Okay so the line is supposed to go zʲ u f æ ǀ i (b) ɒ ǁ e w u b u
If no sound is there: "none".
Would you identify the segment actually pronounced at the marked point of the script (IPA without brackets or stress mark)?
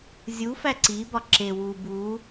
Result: b